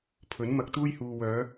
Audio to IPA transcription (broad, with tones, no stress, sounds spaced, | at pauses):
pʰ ɵ˨˥ n m ɐ˧ k̚ t̪ uː˥ j h uː˨ w œː˨˧